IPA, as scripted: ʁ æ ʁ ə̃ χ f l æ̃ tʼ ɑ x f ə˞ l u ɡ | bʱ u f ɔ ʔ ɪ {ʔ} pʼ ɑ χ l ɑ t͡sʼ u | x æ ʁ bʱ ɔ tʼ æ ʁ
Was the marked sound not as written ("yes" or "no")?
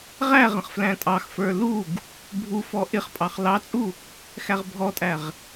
yes